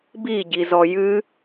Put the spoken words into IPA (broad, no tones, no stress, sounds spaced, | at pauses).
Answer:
b i ɟ i z ɔ j ɨ